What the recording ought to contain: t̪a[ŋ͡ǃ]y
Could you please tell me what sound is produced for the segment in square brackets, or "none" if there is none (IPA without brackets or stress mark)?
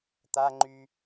ŋ͡ǃ